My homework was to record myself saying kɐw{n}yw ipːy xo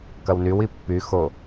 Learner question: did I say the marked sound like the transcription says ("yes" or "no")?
yes